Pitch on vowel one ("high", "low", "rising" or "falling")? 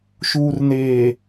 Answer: low